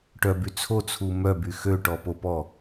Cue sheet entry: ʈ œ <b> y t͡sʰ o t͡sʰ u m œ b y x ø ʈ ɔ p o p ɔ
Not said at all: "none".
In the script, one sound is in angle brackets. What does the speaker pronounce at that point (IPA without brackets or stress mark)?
b